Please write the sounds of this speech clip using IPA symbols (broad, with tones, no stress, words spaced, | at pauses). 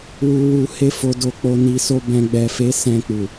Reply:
wu˨wu˨ he˧fo˨do˨ k͡po˨ni˨so˧ bɛ̃˨ɡ͡bɛ˨fe˨˦ sɛ̃˧k͡pu˨